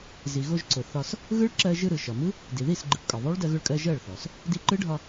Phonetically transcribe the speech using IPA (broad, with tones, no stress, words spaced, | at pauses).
zi˩ɣo˧ʒǀʊ˩ θɒ˧s | ɣɯ˦˥ɭǁɜ˧ ʒɯ˧ɾɯ˩ʃɒ˩mɯ˦˥ | di˩ði˥˩s ɡ͡ǃɯ˩pkʼɒ˩ðˤo˦˥ɭ dɜ˧ɣʊ˧ɭkʼɜ˧ ʒɜ˥˩ɭθɔ˩s | di˧ǃɯ˦˥ɖʱɒ˧